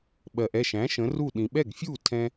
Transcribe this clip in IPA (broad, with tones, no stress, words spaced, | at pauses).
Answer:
ɓɜ˩ʔɛ˥˩ʃæ̃˩˥ ʃə̃˩˥ru˥˩ ɗĩ˩ɓɛ˥˩ɡfʲu˥˩ tʰɛ̃˧